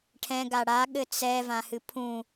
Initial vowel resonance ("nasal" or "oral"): nasal